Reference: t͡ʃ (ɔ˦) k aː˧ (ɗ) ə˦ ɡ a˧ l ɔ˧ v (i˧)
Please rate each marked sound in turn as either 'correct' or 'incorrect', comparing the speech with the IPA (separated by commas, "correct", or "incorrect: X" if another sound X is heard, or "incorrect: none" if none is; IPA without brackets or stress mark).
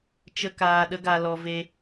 incorrect: ə˦, correct, incorrect: e˧